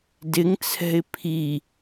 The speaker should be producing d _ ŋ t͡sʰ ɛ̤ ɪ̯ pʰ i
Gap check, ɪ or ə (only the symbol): ɪ